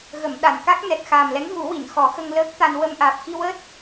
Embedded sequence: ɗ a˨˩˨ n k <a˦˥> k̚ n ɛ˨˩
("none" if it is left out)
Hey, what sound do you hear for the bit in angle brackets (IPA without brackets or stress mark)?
a˦˥